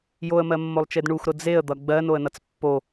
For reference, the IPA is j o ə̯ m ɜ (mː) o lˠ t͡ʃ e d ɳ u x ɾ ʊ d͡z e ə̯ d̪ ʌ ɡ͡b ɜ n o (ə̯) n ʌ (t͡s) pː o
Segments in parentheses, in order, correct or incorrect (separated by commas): correct, correct, correct